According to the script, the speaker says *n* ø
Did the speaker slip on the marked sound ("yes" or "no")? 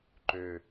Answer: yes